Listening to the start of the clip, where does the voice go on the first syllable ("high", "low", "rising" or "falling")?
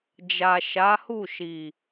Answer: low